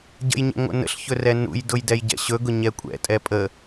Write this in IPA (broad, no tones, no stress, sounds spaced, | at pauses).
ɟ ə̰ j ɲ ɛ̰ ŋʷ ə̰ n ə̰ ɬ ç ɵ r ɛ n ṵ j d ʊ j d ɛ j ɟ ɛ̰ ɕ ɵ ɡ ʊ ɲ ɛ kʷʼ ɛ̰ tʼ ɛ pʼ ə